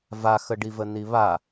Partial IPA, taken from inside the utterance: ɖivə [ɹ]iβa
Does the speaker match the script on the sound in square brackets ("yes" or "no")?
no